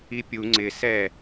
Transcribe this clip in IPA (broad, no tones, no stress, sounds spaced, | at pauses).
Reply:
i pʲ u ŋ͡ǀ ɪ s ɛ